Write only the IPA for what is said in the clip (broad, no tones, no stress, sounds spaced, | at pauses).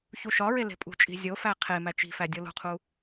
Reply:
ç u ʃ ɒ ɹ e l e̤ pʼ ṳ t͡ʃʼ i̤ zʲ o f æ qʰ e m æ t͡ʃ i̤ f æ dʲ o l ṳ qʰ u